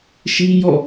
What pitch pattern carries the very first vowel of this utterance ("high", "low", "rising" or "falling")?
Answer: high